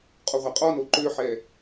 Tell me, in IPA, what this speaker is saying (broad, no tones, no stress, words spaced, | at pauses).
qʼɔʁʷaqʼɔno ǃøħɛ